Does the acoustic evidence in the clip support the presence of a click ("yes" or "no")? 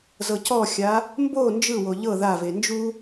no